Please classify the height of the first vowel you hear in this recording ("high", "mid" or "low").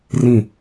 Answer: high